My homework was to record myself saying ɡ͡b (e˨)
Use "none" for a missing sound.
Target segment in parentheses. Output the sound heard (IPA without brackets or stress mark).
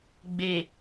e˨